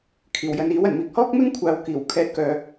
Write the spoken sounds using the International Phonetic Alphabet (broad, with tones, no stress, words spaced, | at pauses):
kʰiː˨˩wjɐ˨˧niː˨˥w ɐ˨˩nmiː˨k̚ hɔː˥k̚ mɪ˥ŋkʷʰaː˨wkiː˨˩w kʰɛː˧t̚kœː˧